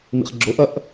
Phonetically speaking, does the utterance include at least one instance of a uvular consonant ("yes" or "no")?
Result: yes